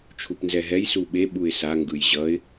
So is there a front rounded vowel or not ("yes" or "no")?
no